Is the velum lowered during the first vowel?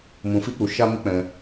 yes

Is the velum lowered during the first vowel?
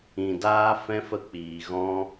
yes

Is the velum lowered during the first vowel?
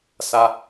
no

